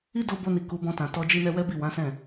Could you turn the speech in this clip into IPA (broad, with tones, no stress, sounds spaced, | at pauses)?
i˦ d o˦ b o˧ n i˨ k u˨˦ b ɔ̃˧ t ã˨ t ɔ˧ d͡ʒ i˧ n ɛ˧ w ɛ˦ b i˦˨ w ã˨˦ s ɛ̃˦˨